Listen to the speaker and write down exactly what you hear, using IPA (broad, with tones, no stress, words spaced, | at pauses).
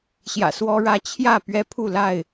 ɕjä̰˨˩swɔ˦ɻä˦ t͡ɕʰjä˥˨ pɥɛ˦ pʰu˥˨la˥˨ɪ̯